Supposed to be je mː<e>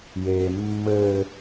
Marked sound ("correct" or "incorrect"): incorrect